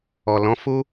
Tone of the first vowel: low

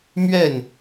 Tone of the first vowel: falling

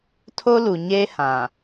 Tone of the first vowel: high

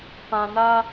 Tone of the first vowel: low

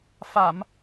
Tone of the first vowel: low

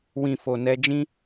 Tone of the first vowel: low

